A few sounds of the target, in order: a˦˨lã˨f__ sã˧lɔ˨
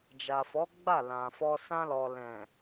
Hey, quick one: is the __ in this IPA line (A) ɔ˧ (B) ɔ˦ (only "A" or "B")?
A